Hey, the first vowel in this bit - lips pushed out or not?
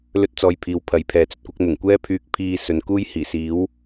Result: yes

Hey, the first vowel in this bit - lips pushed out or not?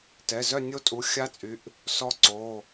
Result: no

